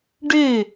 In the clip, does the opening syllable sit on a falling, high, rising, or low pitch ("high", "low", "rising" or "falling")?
falling